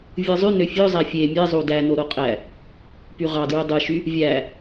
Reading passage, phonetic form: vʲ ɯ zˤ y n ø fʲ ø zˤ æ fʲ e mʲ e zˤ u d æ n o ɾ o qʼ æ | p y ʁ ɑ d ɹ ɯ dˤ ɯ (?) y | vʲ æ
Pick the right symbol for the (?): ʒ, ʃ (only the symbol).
ʃ